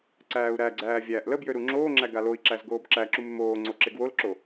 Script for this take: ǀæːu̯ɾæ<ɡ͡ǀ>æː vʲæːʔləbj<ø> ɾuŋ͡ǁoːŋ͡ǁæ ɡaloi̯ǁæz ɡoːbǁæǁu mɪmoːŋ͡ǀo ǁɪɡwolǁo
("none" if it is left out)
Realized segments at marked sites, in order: ɡ͡ǀ, ø

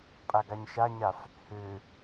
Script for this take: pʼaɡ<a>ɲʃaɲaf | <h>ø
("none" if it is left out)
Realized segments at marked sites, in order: a, h

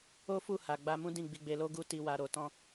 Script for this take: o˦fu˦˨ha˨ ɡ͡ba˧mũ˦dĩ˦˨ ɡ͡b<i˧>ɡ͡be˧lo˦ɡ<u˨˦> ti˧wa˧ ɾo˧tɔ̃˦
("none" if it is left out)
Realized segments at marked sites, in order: i˧, u˦

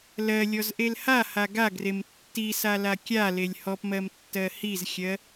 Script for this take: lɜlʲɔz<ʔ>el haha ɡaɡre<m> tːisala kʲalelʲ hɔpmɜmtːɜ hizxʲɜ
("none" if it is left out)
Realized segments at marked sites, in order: ʔ, m

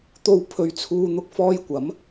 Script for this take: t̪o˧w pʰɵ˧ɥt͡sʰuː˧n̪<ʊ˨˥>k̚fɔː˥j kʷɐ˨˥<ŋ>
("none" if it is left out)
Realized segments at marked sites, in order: ʊ˥, m

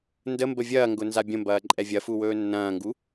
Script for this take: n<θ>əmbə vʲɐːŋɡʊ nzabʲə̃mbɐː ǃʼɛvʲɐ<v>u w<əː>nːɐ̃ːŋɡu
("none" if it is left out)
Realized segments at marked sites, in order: d, f, ɵː

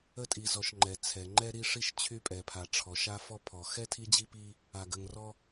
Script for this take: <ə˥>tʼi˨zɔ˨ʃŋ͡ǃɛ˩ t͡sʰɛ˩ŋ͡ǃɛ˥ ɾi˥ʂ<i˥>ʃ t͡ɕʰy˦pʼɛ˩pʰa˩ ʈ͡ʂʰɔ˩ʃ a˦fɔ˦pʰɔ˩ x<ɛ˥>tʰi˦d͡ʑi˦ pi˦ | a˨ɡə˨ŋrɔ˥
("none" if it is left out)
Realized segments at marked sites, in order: ə˥, i˥, ɛ˥

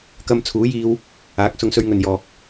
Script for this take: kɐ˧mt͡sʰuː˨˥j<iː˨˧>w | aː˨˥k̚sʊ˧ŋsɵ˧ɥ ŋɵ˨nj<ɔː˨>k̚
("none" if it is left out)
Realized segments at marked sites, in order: iː˧, ɔː˨

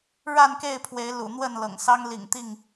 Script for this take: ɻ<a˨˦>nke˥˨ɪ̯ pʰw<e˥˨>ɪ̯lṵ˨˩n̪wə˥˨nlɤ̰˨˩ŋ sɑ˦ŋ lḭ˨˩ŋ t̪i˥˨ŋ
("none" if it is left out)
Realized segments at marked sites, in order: a˥˨, e˨˦

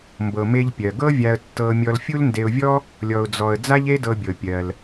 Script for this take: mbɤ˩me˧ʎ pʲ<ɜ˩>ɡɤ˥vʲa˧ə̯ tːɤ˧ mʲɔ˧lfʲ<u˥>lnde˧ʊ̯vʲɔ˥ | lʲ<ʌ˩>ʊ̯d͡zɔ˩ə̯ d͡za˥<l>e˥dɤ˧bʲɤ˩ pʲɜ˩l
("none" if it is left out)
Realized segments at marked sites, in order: ɜ˩, u˥, ɔ˩, ʎ

